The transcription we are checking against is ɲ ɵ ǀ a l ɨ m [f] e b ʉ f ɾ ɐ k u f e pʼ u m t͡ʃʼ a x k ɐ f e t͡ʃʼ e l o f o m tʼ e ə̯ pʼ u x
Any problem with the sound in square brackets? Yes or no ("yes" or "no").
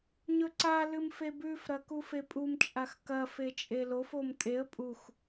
no